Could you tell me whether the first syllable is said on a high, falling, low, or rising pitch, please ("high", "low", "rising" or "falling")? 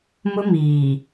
high